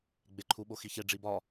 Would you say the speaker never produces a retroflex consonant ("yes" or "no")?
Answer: no